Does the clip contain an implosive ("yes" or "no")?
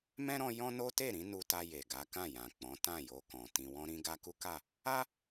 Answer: no